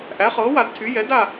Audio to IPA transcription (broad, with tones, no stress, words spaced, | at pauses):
ʔæ˩˥χɤː˩˥wa˨˩˦dtʰy˩˥ jɛ˩˥da˥˨